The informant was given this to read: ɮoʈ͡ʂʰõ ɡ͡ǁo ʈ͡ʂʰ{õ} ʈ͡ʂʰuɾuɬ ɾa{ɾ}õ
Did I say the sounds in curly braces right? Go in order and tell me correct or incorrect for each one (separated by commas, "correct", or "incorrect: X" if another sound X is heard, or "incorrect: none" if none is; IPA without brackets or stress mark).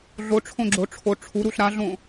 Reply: incorrect: o, incorrect: ɮ